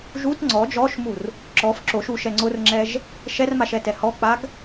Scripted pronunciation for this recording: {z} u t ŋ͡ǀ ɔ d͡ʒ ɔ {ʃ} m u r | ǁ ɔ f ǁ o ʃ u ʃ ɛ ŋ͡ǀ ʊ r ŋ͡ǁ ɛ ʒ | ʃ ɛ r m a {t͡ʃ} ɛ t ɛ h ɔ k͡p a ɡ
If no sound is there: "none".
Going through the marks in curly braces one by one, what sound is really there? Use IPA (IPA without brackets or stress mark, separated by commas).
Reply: ʒ, ʃ, ʃ